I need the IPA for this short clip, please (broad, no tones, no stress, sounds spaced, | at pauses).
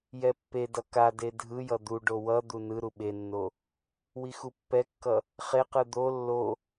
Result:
j ɛ pː e d ʌ k a d e dʱ ɯ j ʌ d̪ u ɖ o w ʌ d̪ u n ɯ ɾ u ɓ e nː o | w i x u pː ɛ kː ʌ | χ e q ɯ d̪ o lː o